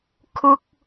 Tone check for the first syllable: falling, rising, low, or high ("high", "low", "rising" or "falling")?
high